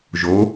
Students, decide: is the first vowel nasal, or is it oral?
oral